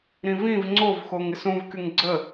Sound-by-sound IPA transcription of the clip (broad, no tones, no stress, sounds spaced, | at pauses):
ɾ ĩ v ĩ v ŋ͡ǀ o v x o ŋ ɪ s ũ v k y ŋ ɡ͡ǀ ə